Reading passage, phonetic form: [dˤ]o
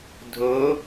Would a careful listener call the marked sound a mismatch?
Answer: yes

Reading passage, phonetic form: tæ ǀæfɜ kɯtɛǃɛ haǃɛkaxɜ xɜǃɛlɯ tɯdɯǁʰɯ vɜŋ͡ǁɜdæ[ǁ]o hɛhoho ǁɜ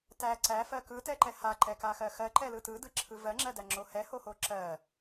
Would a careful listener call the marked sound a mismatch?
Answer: yes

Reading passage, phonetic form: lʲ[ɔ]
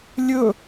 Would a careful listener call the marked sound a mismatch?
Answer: yes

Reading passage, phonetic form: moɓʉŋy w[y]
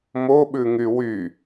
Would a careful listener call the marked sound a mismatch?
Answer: no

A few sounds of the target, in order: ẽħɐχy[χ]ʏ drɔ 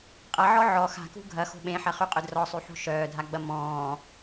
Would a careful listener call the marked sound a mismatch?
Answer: yes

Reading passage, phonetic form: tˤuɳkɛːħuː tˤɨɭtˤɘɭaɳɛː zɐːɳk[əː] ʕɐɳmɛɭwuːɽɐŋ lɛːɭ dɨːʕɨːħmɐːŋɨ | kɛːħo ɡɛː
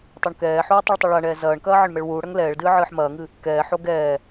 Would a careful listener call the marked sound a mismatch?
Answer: yes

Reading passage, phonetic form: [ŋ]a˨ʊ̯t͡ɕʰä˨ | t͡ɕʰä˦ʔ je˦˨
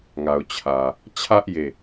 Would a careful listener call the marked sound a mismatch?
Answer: no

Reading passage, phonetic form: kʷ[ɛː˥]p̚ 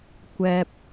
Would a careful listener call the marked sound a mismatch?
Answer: yes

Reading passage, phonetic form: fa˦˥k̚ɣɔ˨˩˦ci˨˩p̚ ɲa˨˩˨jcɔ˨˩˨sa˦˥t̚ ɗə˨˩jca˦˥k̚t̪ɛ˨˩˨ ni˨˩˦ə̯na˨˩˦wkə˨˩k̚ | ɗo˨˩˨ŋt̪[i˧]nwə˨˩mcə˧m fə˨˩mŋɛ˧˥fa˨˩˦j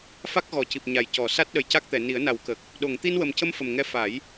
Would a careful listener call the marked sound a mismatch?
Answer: no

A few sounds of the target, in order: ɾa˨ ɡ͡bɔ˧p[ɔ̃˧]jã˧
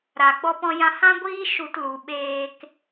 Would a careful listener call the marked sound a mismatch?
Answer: no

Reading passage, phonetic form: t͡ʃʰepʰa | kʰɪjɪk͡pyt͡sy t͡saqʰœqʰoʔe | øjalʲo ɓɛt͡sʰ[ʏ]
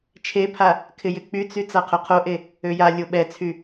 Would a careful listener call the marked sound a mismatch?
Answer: yes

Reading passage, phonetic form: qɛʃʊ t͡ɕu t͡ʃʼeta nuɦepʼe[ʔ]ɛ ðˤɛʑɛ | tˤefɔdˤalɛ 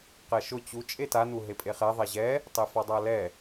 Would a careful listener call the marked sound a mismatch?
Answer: yes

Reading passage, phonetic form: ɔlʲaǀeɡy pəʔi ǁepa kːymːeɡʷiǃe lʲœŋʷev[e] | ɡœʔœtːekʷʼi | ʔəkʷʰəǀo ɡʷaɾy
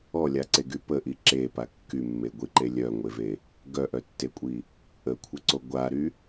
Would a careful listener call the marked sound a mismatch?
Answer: no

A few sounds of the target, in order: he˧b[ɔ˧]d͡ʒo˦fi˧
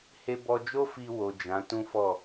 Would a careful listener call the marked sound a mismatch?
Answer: no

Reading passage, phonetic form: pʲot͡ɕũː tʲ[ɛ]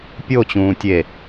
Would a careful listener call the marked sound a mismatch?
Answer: yes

